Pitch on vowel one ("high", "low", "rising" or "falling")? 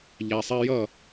low